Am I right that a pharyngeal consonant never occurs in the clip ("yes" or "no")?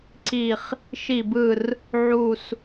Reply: no